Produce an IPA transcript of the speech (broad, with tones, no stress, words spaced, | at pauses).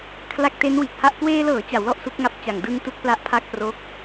kʰla˦˥k̚te˦˥n wiː˨˩k̚ha˥˩ʔ kweː˧lɤː˩˦ t͡ɕa˩˦wlɔ˥˩ʔ su˦˥k̚ŋa˥˩p̚t͡ɕa˨˩ŋ dɯ˧ŋ tu˥˩k̚pla˦˥ʔpʰa˥˩k̚ pro˦˥k̚